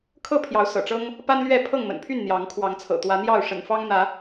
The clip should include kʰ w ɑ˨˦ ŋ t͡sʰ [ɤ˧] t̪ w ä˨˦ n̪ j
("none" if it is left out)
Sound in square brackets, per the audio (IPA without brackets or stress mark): ɤ̰˨˩